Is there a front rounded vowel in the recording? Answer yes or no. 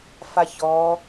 no